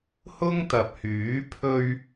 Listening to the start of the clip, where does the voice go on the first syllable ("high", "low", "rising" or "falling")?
high